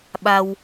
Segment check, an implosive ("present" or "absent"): present